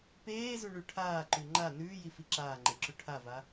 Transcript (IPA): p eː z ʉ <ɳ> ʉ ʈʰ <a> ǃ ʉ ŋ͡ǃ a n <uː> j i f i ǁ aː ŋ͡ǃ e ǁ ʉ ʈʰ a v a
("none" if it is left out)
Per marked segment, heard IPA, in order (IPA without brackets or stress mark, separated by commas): ɳ, aː, ʉː